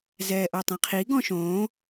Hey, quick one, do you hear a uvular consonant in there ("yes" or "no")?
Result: yes